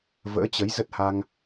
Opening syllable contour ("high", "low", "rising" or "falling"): rising